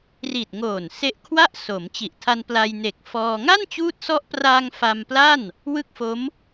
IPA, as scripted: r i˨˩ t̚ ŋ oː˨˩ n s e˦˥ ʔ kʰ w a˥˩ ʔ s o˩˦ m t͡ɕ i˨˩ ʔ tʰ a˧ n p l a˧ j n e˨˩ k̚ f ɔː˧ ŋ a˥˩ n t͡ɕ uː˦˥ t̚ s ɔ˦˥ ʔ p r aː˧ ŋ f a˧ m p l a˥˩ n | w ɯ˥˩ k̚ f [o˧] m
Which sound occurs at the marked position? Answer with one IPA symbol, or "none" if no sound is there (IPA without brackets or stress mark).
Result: o˦˥